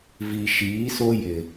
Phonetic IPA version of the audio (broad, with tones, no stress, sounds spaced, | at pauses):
v i˨ ʃ iː˨˦ s o˦ j ɪ˨